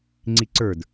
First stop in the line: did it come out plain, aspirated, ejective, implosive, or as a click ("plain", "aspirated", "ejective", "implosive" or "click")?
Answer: click